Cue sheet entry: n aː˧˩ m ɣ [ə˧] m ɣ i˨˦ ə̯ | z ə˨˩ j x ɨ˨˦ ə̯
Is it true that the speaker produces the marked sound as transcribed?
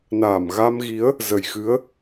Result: no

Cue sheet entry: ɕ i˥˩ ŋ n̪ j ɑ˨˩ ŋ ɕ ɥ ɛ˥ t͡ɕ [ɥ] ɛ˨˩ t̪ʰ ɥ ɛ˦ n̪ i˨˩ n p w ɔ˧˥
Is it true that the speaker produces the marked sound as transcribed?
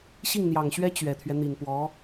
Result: yes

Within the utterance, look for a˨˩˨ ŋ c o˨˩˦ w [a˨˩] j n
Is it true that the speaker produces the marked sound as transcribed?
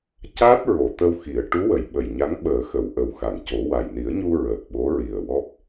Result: yes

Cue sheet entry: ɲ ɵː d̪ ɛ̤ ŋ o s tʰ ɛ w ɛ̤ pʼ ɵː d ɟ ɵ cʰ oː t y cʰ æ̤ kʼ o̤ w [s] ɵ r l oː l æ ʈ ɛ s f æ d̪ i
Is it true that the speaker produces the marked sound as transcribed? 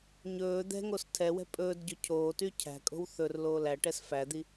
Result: no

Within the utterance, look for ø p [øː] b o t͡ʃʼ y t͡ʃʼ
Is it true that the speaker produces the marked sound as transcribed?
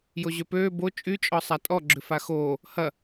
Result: yes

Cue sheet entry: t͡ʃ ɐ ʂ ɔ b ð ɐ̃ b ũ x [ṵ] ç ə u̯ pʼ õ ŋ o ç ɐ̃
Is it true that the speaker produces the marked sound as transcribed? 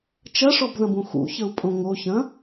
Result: yes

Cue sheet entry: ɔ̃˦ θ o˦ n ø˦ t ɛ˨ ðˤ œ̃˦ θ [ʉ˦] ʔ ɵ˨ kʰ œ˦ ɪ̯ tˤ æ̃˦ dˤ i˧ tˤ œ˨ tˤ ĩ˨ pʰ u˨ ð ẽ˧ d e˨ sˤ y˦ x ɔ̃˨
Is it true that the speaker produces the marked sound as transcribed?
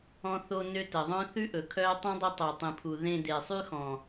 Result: yes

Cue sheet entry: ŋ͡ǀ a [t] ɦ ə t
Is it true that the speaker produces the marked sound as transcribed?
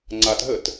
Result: yes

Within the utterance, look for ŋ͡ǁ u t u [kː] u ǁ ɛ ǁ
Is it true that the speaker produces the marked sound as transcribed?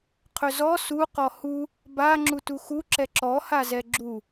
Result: no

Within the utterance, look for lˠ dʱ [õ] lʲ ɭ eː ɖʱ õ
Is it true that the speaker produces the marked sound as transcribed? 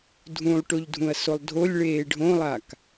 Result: no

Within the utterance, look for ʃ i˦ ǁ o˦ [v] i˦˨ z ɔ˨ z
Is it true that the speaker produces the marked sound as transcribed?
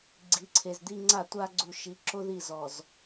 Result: no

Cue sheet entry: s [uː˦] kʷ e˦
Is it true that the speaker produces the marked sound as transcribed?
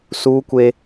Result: yes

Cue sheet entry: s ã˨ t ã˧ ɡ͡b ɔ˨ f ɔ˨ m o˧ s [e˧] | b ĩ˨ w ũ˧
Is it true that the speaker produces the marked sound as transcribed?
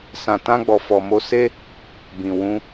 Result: no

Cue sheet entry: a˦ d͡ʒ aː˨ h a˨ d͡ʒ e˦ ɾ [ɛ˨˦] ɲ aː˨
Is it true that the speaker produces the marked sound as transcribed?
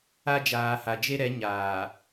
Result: yes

